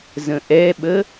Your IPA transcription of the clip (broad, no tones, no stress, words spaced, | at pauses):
zə̃ʔɛɓə